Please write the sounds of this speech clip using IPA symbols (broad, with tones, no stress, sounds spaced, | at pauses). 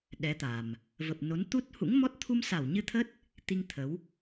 ɗ ɛ˨˦ t̪ a˨˩ m | v ə˨˩ p̚ n o˨˦ n t̪ u˦˥ t̚ h ṵ˧˥ ŋ m ɔ˦˥ t̚ t̪ʰ u˧ m s a˧˩ w ɲ ɨ˧ t̪ʰ ə˦˥ t̚ | t̪ i˧ ŋ t̪ʰ ə˨˦ w